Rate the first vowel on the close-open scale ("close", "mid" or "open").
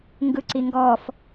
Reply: close